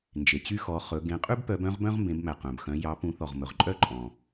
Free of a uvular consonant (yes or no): no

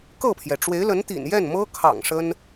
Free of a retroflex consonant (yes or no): no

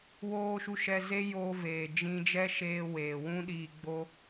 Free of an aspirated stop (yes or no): yes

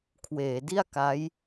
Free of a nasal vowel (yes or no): yes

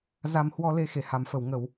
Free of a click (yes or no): yes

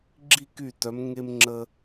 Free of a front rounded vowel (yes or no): no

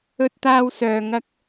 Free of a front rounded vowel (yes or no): no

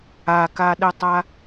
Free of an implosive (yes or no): no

